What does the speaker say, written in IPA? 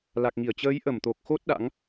l a˨˩ k̚ ŋ i˧˩ ə̯ t͡ɕ əː˨˦ j ʔ ə˧˩ m t̪ o˨˩ k̚ x o˦˥ t̚ ɗ a̰˧˥ ŋ

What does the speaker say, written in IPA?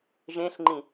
ʒ ẽ ɬ ŋ͡ǃ ĩ

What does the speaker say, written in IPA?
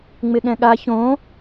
ŋ͡m ɪ ɠ ɛ̃ ɠ a ç õ

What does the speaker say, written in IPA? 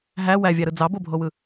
ɦ æ w æ vʲ æ ɾ ɯ d͡z ɑ b o bʱ o w ɯ

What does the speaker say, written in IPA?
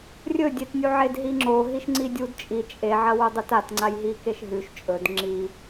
rʲ ɵ dʲ e t nʲ u ʕ e d ɦ i ŋ͡ǁ o ɦ i ʃ ŋ͡ǀ i dʲ u d t͡ʃʼ i t͡ʃʼ e ʕ ɐ w u dˤ ɨ t a t ŋ͡ǀ a j ɦ i k e ʃ ɦ ʉ ʃ t͡ʃʼ ɵ d ŋ͡ǁ i

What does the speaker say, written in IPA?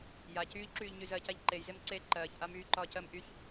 j a c yː ʎ ǁ yː ʎ ɲ y z ɜ c a ʎ ǃ e j z e m ǀ e ǃ ɜː ç ʔ a m yː ǃ ɒː c ɜ m ʔ y ç

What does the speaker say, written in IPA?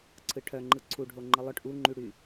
ǀʰ ɯ ʈʰ œ ŋ͡ǃ ɯ ǀʰ u ɖʱ o ŋ͡ǃ ɯ lˠ œ ʈ ʔ u ŋ͡ǃ y ɽ y

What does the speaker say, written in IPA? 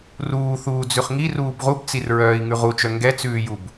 r uː θ uː d͡z ʉ χ ŋ i r uː b ʁ u b t͡s i r ɹ œː i̯ ŋ ʉ ʁ u t͡ʃ œ ŋ ɡ ɛ t͡s ʉː j u b

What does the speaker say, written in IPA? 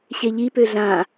ɕ e ʎ i p ø ɮ ã

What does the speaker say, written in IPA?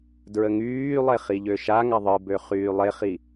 d ɹ ə ŋ yː lˠ e χ i ʎ ø ʃ a ŋ a ðˤ ɯ b ø χ yː lˠ e χ i

